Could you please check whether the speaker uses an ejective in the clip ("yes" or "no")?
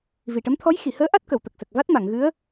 no